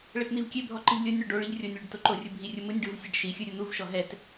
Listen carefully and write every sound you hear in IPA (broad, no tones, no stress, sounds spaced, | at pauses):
ɭ ɛ t n̪ i v kʲ e bʱ ɔ ǃ ɯ ʎ lʲ o nʲ ɳ o ɖ o ɭ i ʎ rʲ o nʲ ɭ u ɖ t o ǃ o rʲ ɯ bʱ i rʲ ɯ m ɯ nʲ ɖ ɯ v sʲ ɛ ɖ ʃ i xʲ ɯ ɾʲ u n̪ u v ʃ ɔ ɦ ɛ t